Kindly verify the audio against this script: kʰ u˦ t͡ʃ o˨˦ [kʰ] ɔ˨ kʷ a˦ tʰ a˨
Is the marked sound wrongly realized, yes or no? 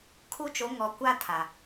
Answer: yes